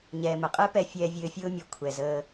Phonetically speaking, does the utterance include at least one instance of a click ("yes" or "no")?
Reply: no